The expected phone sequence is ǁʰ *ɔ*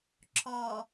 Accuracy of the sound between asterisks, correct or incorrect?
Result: correct